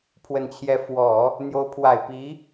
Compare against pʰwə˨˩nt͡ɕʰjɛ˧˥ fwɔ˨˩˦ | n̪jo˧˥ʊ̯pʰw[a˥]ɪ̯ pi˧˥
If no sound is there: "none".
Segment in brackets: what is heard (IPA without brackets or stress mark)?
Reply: a˨˩